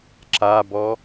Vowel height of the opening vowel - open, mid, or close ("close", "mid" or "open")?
open